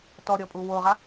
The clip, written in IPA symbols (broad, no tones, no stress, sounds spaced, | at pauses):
t ɔ ɾʲ ɔ pʼ u w o ʁ a